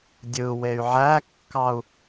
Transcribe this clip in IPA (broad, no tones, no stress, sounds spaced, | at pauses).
dʲ ɯ w e y̯ ʕ æ kː ɑ u̯